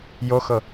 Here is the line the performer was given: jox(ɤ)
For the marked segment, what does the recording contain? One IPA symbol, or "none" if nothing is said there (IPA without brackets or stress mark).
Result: ɤ